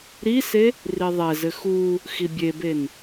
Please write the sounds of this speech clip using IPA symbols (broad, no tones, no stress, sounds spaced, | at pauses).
ɾ i s e | r i ðˤ ɛ z ɘ x u | x i bʲ e b e n